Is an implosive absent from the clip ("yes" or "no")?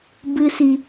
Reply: yes